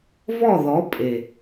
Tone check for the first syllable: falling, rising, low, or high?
falling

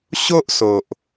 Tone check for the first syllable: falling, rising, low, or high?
high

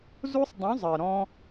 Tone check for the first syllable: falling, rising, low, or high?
high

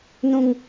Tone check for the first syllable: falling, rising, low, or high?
high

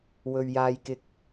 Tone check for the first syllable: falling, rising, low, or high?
low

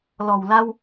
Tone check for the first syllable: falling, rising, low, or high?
low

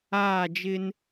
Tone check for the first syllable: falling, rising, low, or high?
falling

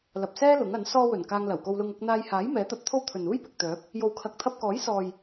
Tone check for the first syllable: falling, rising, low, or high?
low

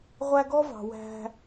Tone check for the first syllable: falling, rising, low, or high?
high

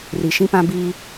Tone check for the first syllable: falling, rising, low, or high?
low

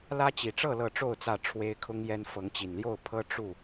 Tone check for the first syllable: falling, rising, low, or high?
high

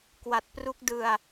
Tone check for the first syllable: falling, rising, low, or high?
low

